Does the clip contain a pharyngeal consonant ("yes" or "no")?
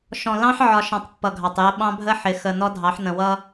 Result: yes